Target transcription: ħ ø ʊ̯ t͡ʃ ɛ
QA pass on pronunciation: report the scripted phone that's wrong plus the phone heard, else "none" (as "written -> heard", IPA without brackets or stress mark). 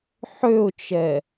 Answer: none